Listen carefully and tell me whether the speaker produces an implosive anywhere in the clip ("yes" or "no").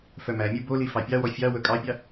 no